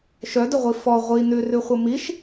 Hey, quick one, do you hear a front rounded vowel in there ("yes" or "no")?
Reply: yes